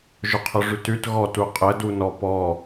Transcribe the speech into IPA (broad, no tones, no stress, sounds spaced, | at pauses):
ʒ ʊ qʰ ʊ ʐ ʉ t ʉ t ɣ ɔ t u qʼ ə d u n ɔ p ɔ